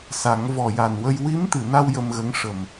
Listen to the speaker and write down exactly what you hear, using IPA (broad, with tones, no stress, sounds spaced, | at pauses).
s a˨˩˦ ŋ v ɔ˨˩ j a˨˩ n w ə˧ j w i˧˥ m t̪ ɨ˨˩˨ n a˧ w j ə˧ m ɣ ə˧˥ ŋ ʂ ə˨˩ m